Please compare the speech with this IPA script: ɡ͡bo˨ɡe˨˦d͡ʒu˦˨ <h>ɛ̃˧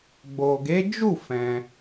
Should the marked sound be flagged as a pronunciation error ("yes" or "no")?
yes